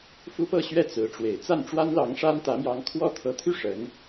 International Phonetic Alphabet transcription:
f u˥ p ɤ˥˧ ɕ ɥ ɛ˥˩ t͡s ɹ̩˧˥ ʈ͡ʂ w e˨˩ ɪ̯ t͡s a˥˩ n ʈ͡ʂ w a˥ n l ɑ˧˥ ŋ ʂ a˥ n t̪ ä˧˥ m j ɑ˧˥ ŋ kʰ w ɔ˥ t̪ʰ ɤ˧˥ t̪ʰ y˥˩ ʂ ə˧˥ n

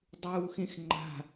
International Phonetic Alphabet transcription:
dˤ uː x ẽ x ŋ͡ǃ a̤

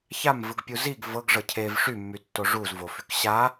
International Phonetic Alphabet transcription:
ç a m v ɯ ɡ pʲ u z i ɡ v ɤ ɡ ʐ ɤ cʰ e v ʂ y mː y tː o ʐ u z v o f y k ɕ a

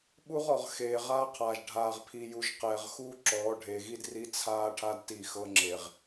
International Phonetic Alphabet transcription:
ɓ u˦ ʁ ɔ˨ ʁ x eː˨ ʁ aː˦ qʰ aː˨ ʒ ɖʱ aː˨ ʁ pʰ i˨ j u˨ ʒ q ɛː˨ ʁ x uː˦ ǁ ɔː˨˦ ɖʱ eː˨ ɣ i˦ d r i˦ t͡sʰ aː˦ ʈʰ a˦ d t i˦˨ x ɤ˦ ŋ͡ǁ e˨ ʁ

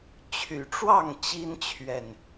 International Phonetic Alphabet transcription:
t͡ɕʰ y˨˩ ʈ͡ʂ w ɑ˥˨ ŋ t͡ɕ i˦ n t͡ɕʰ ɥ ɛ˨˩ n

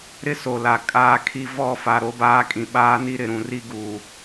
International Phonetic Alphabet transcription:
ɾ ɪ˦ s o˨ l a˨ kʼ aː˦ kʰ i˦ v ɔ˦˨ f a˨ ɾ o˦ b aː˦ kʼ ĩ˨ ɓ aː˦ n i˦ ɾ ɪ˨ ɾ ũ˨ r i˦ ɡ uː˨

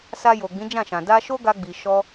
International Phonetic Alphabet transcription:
s a˧ j o˨ ɡ͡b ĩ˨˦ d͡ʒ ã˦˨ ʃ ã˨ d a˧ ʃ o˦ ɡ a˧ ɡ͡b i˨ ʃ ɔ˧

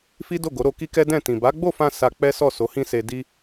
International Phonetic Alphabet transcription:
f i˦ d o˦˨ ɡ o˨˦ ɾ o˧ k i˦ k ɛ˦ d ɛ̃˦˨ t ĩ˨ b a˨˦ ɡ͡b o˦˨ f ã˧ s a˧ k͡p ɛ˦ s ɔ˦˨ s o˨˦ h ĩ˦ s e˧ d i˧

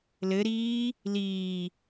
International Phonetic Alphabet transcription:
l ɘ ɾ iː | l iː

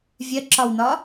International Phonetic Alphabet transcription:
vʲ ɜ ǁ ɒ w n ɒː

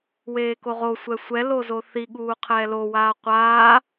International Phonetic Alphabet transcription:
w eː k o ʁ o sʷ ɛ sʷ ɛ l o z o θ i ɠ uː qʰ ɛː l o w aː qʷ aː

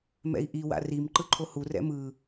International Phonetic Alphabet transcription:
m ɛ̰ i̯ ʔ i w a̰ r i m ǃ ɯ ǃʰ o h u r ɛ̰ m ɯ

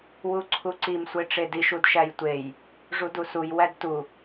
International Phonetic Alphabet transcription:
w u ǀʰ u ǀ i m sʷ e ʈ͡ʂ e d i ʃ u d ʃ æ j tʷ e j | ʐ u d u s u j w æ d t u

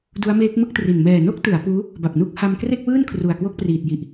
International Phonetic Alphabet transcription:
d u˦˥ a̯ m eː˦˥ k̚ m ɯ˥˩ k̚ t r i˨˩ n m ɛː˨˩ n o˥˩ k̚ t ɯ˩˦ a̯ p uː˦˥ | b a˨˩ p̚ n u˦˥ k̚ h a˧ m k r e˥˩ k̚ w ɯː˥˩ n kʰ r u˨˩ a̯ k w o˥˩ k̚ p r iː˨˩ t̚ j i˨˩ ʔ

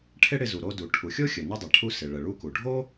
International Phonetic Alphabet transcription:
ʈʰ ɪ˥ ɽ ɪ˧ z u˩ ɾ o˧ d u˩ ʈʰ u˩ xʲ o˥ xʲ ə˩ n ə˧ dˤ ɪ˩ ʈʰ u˧ s ɪ˩ ɭ ə˩ ɭ u˧ k u˩ ɖʱ o˥

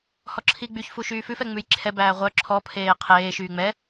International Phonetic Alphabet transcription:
h ɔ ǁʰ i ɡ͡b y ç f u ʃ yː f ʉ f ɛ ŋ͡m ʉ j ǁʰ ɛ b æː ʁʷ œ ǁʰ ɔ pʰ eː qʰ eː ʃ yː ŋ͡m ɛ

